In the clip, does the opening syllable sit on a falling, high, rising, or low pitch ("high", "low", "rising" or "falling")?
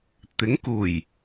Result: rising